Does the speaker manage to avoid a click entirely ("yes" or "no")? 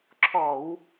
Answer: no